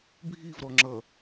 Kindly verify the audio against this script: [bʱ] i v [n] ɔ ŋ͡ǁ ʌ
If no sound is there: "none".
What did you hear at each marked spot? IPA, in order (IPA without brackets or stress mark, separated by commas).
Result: bʱ, ɾ